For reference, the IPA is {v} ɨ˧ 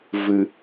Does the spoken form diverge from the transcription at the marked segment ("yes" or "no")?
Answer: no